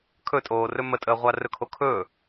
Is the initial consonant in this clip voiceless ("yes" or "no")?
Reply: yes